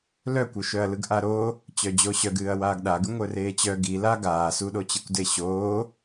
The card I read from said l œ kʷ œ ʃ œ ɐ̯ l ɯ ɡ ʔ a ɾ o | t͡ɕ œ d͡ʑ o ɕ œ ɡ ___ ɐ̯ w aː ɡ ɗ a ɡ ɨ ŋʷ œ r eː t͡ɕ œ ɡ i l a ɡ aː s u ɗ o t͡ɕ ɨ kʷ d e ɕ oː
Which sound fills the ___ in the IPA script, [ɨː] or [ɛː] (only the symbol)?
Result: ɨː